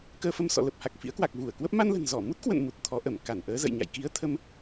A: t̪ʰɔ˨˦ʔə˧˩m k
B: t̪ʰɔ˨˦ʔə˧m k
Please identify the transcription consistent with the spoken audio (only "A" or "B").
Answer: A